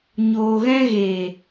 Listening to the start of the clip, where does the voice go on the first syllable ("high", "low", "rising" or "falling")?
low